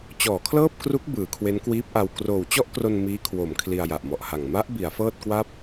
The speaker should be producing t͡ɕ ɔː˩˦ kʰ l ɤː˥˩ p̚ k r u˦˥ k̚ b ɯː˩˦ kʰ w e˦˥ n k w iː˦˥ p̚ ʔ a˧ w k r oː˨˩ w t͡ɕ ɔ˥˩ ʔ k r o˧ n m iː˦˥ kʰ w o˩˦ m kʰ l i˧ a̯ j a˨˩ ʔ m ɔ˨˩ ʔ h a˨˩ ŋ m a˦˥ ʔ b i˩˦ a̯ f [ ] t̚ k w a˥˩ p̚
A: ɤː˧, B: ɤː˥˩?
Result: B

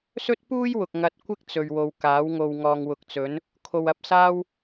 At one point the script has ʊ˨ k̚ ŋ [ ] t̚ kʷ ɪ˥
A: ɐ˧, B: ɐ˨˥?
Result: A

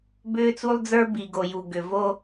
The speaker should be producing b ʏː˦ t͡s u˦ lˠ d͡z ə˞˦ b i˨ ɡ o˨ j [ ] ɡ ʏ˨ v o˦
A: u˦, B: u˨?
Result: B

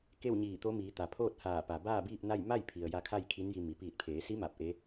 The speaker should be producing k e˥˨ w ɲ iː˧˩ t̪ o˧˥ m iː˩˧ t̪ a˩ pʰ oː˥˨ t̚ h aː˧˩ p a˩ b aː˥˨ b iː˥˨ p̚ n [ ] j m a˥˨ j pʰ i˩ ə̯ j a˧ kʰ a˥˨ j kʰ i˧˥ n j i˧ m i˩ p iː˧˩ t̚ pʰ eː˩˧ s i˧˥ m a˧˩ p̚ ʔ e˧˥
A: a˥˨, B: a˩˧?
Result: A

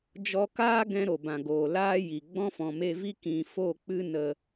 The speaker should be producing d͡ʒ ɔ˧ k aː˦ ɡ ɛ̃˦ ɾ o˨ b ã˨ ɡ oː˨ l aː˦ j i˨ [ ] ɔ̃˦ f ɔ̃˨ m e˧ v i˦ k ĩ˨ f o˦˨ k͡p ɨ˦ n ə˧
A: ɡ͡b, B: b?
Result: A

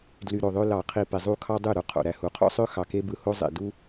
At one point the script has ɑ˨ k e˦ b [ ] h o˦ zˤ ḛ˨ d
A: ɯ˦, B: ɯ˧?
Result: B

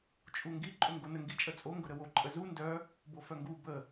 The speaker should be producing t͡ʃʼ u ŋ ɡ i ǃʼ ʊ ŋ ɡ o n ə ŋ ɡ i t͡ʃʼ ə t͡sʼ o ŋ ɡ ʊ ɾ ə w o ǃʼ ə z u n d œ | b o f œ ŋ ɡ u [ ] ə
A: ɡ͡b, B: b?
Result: B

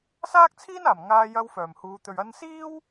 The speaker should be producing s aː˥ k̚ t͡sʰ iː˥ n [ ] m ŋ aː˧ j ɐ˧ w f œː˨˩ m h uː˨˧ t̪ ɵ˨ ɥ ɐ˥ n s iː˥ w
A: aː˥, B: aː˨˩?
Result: B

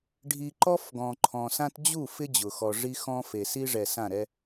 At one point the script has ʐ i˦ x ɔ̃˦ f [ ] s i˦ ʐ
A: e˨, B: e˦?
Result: A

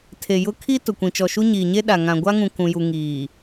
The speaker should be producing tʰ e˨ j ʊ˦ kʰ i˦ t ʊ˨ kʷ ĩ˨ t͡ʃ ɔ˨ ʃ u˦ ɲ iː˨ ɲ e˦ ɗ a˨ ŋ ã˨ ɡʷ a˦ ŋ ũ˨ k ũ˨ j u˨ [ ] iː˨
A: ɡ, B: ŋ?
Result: B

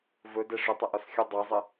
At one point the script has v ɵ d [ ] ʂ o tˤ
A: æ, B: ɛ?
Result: B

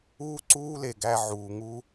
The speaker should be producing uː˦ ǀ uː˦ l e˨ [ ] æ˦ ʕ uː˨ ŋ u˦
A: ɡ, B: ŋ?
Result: A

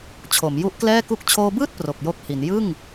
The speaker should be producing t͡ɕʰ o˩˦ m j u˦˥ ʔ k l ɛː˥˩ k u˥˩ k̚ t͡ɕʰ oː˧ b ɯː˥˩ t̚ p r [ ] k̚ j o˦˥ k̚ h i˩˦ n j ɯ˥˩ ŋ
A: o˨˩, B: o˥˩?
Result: A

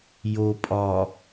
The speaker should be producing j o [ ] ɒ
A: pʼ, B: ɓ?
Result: A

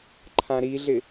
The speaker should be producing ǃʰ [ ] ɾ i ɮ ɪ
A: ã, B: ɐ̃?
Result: A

